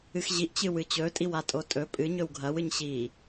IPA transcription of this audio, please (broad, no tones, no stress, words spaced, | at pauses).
ɨxʑiʔ t͡ɕɨwɨt͡ɕɵ tʼiwatʼotʼɵ pʼɨ ɲɵwɡʱɐw ɨɲɕi